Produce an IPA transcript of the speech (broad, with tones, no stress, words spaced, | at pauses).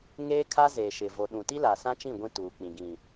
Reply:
ŋeː˦kʰa˦ zeː˨ʃɪ˨ vo˨ɗũ˨ ti˦la˨sã˦t͡ʃĩ˦˨ ɡʷĩ˦tuː˨k͡pĩ˨ ɡĩ˨